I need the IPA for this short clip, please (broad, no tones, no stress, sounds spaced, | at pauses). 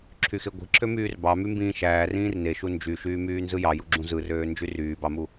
ǁʰ y x e ɡʷ i̤ ǁʰ ø m yː r b ɑ m y m b ĩː ʃ æː r ĩː r n e ʃ u n d͡ʒ y ʃ yː m yː n z ɯ j ɑ j u ɡ͡ǁ ũ z ɯ r øː n d͡ʒ y r yː b ɑ m u